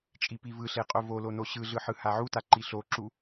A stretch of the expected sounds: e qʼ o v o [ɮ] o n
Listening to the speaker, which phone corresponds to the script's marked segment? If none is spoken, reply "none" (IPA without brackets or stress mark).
l